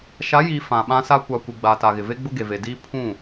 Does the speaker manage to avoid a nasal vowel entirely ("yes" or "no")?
no